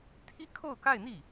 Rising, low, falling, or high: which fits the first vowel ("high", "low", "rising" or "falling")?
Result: high